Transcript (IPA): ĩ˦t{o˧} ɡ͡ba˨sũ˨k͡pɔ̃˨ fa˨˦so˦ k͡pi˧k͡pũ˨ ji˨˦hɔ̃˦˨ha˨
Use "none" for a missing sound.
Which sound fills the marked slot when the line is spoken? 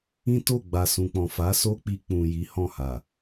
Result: o˦˨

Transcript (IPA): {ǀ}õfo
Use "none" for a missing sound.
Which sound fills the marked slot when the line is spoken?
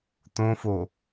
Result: t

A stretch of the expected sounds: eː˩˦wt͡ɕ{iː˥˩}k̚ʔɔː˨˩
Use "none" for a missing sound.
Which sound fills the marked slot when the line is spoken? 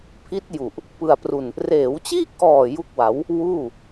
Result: iː˥˩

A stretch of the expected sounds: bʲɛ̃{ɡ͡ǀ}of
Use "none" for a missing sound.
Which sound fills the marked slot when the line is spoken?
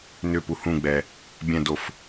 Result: d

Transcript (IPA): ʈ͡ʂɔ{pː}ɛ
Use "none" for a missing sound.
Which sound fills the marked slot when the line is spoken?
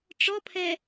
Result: pʰ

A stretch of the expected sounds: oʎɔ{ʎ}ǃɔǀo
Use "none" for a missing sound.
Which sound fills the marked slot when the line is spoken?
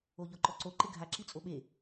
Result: none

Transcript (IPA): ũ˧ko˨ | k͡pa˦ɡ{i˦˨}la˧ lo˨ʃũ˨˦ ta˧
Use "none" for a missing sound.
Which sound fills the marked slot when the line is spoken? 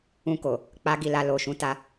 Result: i˦˨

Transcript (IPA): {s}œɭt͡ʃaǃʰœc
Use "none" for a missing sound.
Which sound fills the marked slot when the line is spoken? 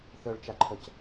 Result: θ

